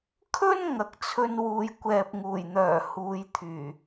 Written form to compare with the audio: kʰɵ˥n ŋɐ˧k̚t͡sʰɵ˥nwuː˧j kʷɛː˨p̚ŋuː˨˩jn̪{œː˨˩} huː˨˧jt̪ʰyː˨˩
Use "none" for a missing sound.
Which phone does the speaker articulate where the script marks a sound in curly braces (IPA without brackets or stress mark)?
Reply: œː˨˩